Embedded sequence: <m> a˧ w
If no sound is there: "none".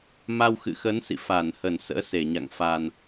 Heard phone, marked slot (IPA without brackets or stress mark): m